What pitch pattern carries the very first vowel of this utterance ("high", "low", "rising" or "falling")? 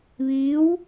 rising